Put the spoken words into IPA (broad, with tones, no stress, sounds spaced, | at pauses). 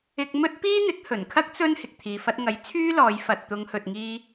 ɪ˧ k̚ m ɵ˥ t̚ p iː˥ n̪ ɪ˨˥ k̚ h ɵ˨˩ n kʰ ɐ˥ k̚ t͡s ɵ˥ n h ɪ˨ k̚ t̪ʰ iː˨ f ɐ˧ t̚ ŋ ɐ˨˥ j t͡sʰ yː˥ l ɔː˨˧ j f ɐ˨ t̚ t̪ ʊ˨˧ ŋ h ɵ˨ t̚ ŋ iː˧